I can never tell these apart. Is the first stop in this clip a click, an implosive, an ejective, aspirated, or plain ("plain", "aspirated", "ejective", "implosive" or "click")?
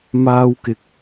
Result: plain